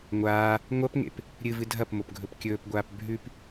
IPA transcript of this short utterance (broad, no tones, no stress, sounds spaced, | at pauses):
ŋʷ aː | ŋʷ ɐ p ŋ ḛ p | ɾʲ ɨ v ɨ dʱ ɐ p m o p ɡʱ ɵ p kʲ ɵː p ɡʷ aː p bʱ ʉ p